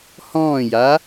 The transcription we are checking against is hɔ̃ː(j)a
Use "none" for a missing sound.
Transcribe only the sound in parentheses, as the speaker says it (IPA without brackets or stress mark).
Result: j